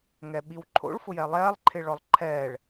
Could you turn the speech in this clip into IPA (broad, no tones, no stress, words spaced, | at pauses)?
ŋɛɓiwǃʰo̰ɭ fʊjɛlˠɛːlˠ ǃʰɪɭɔlˠǃʰɛːɭ